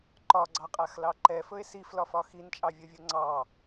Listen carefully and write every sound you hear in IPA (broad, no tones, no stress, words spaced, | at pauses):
ǃɒɡ͡ǀɑqʼaxlɑ ǃɛfɵe̯ siflɒfɒ xint͡ʃʼɑvʲovʲo ŋ͡ǀɑ